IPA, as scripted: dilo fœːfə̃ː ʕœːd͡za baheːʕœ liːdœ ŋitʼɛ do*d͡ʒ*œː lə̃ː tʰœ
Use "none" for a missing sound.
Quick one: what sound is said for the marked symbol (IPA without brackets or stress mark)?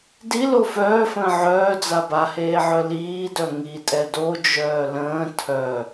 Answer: d͡ʒ